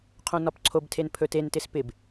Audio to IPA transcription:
qʰ õ n ɒ p ǀʰ o b tʰ e n pʰ ɵ t e n t ɪ s p ɪ b

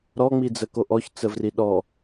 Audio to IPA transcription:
ɾ ɔ ŋ͡m i d͡z ə k o ʔ ɔ ç t͡s ə v r i ɗ ɔ

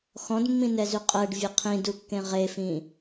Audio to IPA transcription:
x ɔ̃ d mː ĩ n ɛ z y qʼ ɜ ɖ vʲ ɘ qʰ ĩ d u kː ẽ ʁ e f ĩ

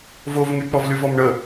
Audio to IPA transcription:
v o v ŋ y k͡p ɔ v l y v ɔ m ɳ ə

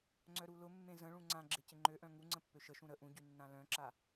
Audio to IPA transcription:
ŋ͡ǀ œ ɾ u l ʊ mː ẽ z ə̃ ɭ ũ ŋ͡ǀ ã ɡ͡ǁ ɪ c ɪ ŋ͡ǃ ø ʔ œ̃ ŋ u ŋ͡ǀ ə̃ pː ø ʃ ə ʃ ũ ɾ ə ʔ ũ ɟ y nː ã l œ̃ ǁ a

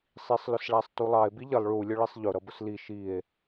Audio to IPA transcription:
sˤ i sˤ l ʊ s ɭ æ sˤ t u lˠ ɑ e̯ b i ʎ ə lˠ ɭ u lʲ ʊ ɭ i sˤ ʎ ʊ ɾ ʌ b ʊ s l i ʃ i e̯

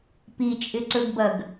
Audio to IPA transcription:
p i t͡ʃʼ ɪ ǀ ɵ ɡ b ɐ ɡ

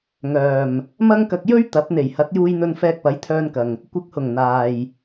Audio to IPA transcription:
ŋ œː˨˩ m | m ɐ˥ ŋ k ɐ˧ k̚ j ɵ˥ ɥ t̪ ɐ˨˥ p̚ n̪ e˨˩ j h ɐ˨˥ t̚ j uː˧ j n̪ ɵ˧ n f ɛː˧ k̚ p ɐ˨˥ j t̪ʰ œː˧ n k ɐ˨ ŋ | kʷ ɪ˨˥ k̚ h ʊ˨˩ ŋ n̪ aː˨ j

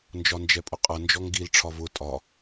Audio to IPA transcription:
n d͡ʒ ɒ n d͡ʒ ɛ pʼ ʊ qʼ ʌ n d͡ʒ ɔ ŋ ɡ i l ʈ͡ʂʰ ɒ v ʊ tʼ ɒ

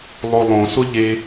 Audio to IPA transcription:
lˠ o lˠ õ s ʊ ʎ e

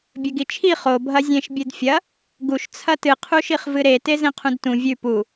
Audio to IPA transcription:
bʲ ɵ ɡ i t͡ʃʰ i χ o bʱ ɐ zʲ ẽ ʃ bʲ ɨ d fʲ ɐ | ɡ u ʃ t͡sʰ ɐ t ɨ qʰ u ʃ i χ v ɨ ɾ e t e z ẽ qʰ ũ d t ũ vʲ ʉ p u

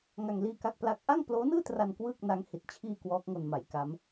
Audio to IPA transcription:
ŋ a˧ ŋ l iː˥˩ k a˥˩ k̚ p l a˥˩ k̚ ʔ a˥˩ ŋ p l oː˦˥ n ɯː˥˩ t r a˧ n k w ɯː˥˩ k̚ n a˦˥ ŋ h i˨˩ t̚ t͡ɕʰ iː˧ k w ɔː˦˥ k̚ ŋ o˧ n m a˩˦ j k a˦˥ m

